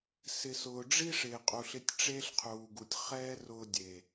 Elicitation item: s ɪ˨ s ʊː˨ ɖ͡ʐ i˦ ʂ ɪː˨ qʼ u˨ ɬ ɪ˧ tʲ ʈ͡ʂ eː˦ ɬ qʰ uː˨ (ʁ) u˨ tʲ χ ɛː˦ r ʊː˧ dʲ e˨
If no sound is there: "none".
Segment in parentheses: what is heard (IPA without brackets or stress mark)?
ɡ